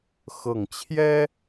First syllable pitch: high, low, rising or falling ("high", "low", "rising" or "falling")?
low